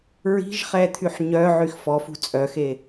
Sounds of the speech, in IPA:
ɹ i̤ ʒ χ ɛ t̪ʰ y ħ ɲ œ ʕ y x f ɔ f ṳ t͡sʼ œ x e

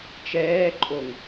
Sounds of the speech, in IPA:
t͡ʃ ɛː ǃʼ o ŋ

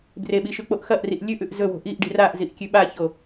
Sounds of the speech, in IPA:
b r e ɓ i ʃ ʉ k͡p o ʔ x ɐ ʔ r i ʔ lʲ ʉ ʔ ʉ ʔ z ɵ w o̤ ʔ i ʔ ɖ i̤ r a ʔ z i ʔ kʲ ʉ ɓ a ç o

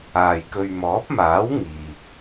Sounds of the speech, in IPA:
aː˨ j k ɵ˧ ɥ m ɔː˨˥ p̚ m aː˨˥ w ŋ iː˨ k̚

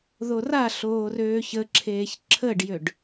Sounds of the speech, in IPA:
ð o r a ɬ oː r øː ç ə ǁʰ eː ç ǁʰ ə ɖ j ø ɖ

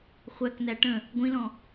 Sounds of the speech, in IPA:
χʷ æ k n æ ʈ ə̃ | ɡʷ ĩ l ɔ̃

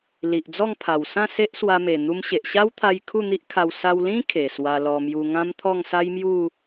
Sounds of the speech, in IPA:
l i˨ ʔ d͡z ɔ˥˧ ŋ pʰ a˨˩ w s ã˥˧ s e˦ ʔ s w a˧ m e˨˩ n̪ u˧ m ɕ e˨ ʔ ɕ a˦ w t̪ʰ a˧ j kʰ u˥˧ n̪ i˦ ʔ kʰ a˧ w s a˧ w l ĩ˦ kʰ e˨˩ s w a˧ l ɔ˧ m j u˧ ŋ ã˦ m t̪ʰ ɔ˥˧ ŋ s a˦ j m j u˥˧

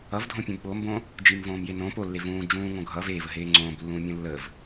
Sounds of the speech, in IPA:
ʌ v dʱ õ pʲ õ b ɓ o m b õ | d͡ʒ i m v õː m j e n õ p o lː e v ũː d͡ʒ ũː ŋ õ ɡʱ ʌ v eː v ə ɦ eː ŋ͡ǀ õː b lː ũː mʲ ũ lː ə v

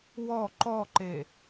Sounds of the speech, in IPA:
w ɔ ǃ ɔ ǃ e

